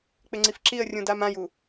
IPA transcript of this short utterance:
k͡p ɪ ŋ͡ǀ i f ǁ i ə̯ rʲ ũ d a m ã j u

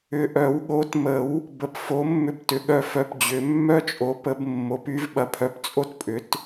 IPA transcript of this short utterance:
ʏ˨ ʔ œ˨˩˦ w ɠ o˩˥ t m ə˨˩˦ w | b ə˨ p f o˩˥ mː ʏ˥ b t ʏ˩˥ ɠ œ˥˨ f œ˨ p d͡ʑ ʏ˨˩˦ mː œ˥ t͡ʃʼ o˩˥ p ə˨˩˦ b mː o˩˥ p y˩˥ v ɓ ɐ˨ pʰ œ˩˥ p t͡sʼ o˥ t pʼ ʏ˩˥ t

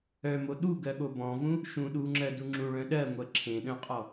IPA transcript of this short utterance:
œ m o ɗ u ɡ ɜ ɠ o b ɔ̃ v ũ | ʃ ũ ɗ u ŋ͡ǁ ɜ d u ŋ͡ǁ ũ ɭ œ̃ ɗ ɜ ŋʷ ɜ ǁʰ ẽ ɗ œ̃ qʼ ɔ

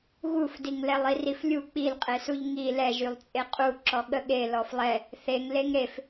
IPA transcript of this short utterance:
ɣ u f d i ŋ l ɛ lˠ i r i f lʲ u k͡p i l qʼ e s u ʎ ŋ i l ɛ ʒ y lˠ t͡sʼ e qʼ u ǁ ɔ ɠ ə ɠ e l ɔ f lˠ ɛ | θ e ŋ l e ŋ ɾ e f

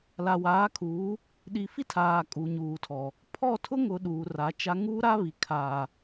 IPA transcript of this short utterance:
l a˨ w aː˨˦ kʰ uː˨˦ | ɗ i˨ f i˦ tʰ aː˨ kʼ u˨ ɲ uː˨ tʰ ɔ˨ | pʰ ɔ˦˨ tʰ ʊ˦ ŋ ʊ˨ ɗ uː˨ r a˨˦ t͡ʃ a˦ ŋ uː˦ ɾ a˦ β i˨ kʰ aː˨

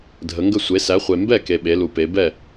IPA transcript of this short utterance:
dʱ ə˨˦ ŋ ɡ ə˥˨ sʷ e˨˦ s æ˨˦ χʷ e˨ m b ɛ˥˨ k e˨ ɓ e˨˦ l u˨ p e˨˦ b ɛ˥˨

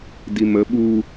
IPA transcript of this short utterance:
d i m ə ɓ u

